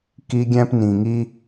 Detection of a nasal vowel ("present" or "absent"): present